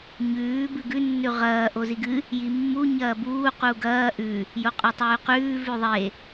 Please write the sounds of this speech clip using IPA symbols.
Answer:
ɲ ʉː b ɨ ɡ ʉ nː ʉ ʁ ɐː ʔ o z i ɡ ɨ | j i mː u ɲ ɐː b uː q u ɡ ɐː ʔ ʉ | j o qʼ ɵ tˤ ʉː q ʉː v ʉ ðˤ e

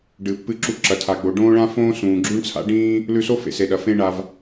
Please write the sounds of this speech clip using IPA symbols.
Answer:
ɖ ɨː˩ pː ɨ˧ ǁ u˧ ǁ ɐ˩ tʰ a˩ ɡ͡b o˩ ɖ õː˥ ɭ ã˥ f õː˥ s ũː˩ ɡ͡ǁ ʉ˥ ɳ t͡sʰ a̰˥ ɖ ĩː˥ | l ʉ˧ s o˥ f ḛ˩ s e˩ ɗ ɐ˩ f ẽ˧ ɳ a˩ v

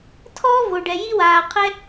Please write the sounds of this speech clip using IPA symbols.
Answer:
tʰ ɔː˥ v o˩ ɖ ɛ˩ j i˥ w aː˩ qʰ ɛ˥

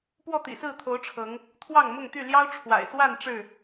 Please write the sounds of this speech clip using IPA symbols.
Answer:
p w ɔ˥˨ t̪ ḭ˨˩ s ɹ̩˥˨ t̪ʰ o˨˦ ʊ̯ ʈ͡ʂʰ ɤ˨˦ ŋ | t̪ʰ w ɑ˥˨ ŋ m ʊ˥˨ ŋ t̪ y˥˨ l j ɑ˦ ʊ̯ ʈ͡ʂʰ w a̰˨˩ ɪ̯ s w a˥˨ n ʈ͡ʂ ɻ̩˥˨

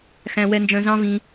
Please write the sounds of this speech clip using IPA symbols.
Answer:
x æ̃˧ w ɛ˧ n d͡ʒ œ̃˧ z ɑ̃˦ v ĩ˧

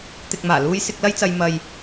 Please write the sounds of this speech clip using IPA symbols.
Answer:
t̪ ɪ˨ k̚ m aː˨˩ l uː˧ j s ɪ˧ k̚ l ɐ˥ j t͡s ɐ˧ j m ɐ˨ j

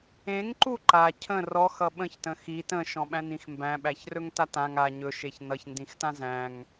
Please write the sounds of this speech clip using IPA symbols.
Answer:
ẽ ŋ ǃ u ǃ a cʰ ə̃ r ɔ x ʌ ɓ ə̃ ç t ə̃ x i t ə̃ ʃ ɔ̃ ɓ æ̃ n ĩ x m b æ̃ ɓ æ ç r ɵ ŋ t a t ã ŋ a ɲ ɵ ʃ e ç n ʌ ç n d ĩ x t ã z æ̃ ŋ

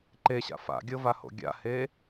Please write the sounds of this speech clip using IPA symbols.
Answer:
ǃ e ɕ a̰ f a̰ ɡʲ ɤ v a h o̰ ɡʲ a̰ h e

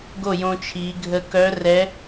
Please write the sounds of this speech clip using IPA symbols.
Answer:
ɡ o˥˩ j õ˧ t͡ʃʰ i˩˧ ɡʱ ə˧ k œ˧˥ r ɛ˧˥

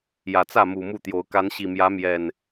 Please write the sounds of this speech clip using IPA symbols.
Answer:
j ä˨˩ t͡s ä˥˨ m u˨˩ m u˥˨ t̪ j o˨˦ ʊ̯ k a˨˦ n ɕ i˨˩ m j ä˨˦ m j ɛ˨˩ n

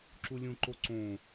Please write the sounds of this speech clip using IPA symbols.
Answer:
ǁ u lʲ ũ ǃ o ǀ õ

